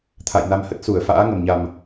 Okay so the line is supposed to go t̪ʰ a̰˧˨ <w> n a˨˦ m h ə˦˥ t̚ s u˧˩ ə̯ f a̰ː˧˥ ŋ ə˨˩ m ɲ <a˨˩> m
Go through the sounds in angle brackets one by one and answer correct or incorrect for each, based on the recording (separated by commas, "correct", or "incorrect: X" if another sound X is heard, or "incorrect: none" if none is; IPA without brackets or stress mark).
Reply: incorrect: j, correct